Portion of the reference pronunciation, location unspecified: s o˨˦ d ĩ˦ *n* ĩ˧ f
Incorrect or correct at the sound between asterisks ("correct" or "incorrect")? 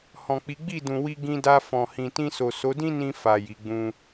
correct